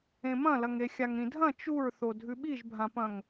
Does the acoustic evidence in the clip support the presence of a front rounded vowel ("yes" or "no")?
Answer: no